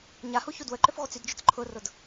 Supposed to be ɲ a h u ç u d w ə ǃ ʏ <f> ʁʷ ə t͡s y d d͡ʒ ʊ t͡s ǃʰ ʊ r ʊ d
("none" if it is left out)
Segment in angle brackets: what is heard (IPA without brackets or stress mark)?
f